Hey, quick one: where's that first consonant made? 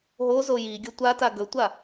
throat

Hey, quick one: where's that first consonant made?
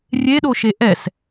tongue tip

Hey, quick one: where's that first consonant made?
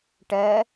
retroflex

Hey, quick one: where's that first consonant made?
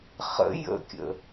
uvula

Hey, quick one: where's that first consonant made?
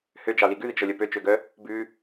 throat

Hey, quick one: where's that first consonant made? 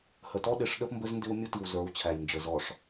throat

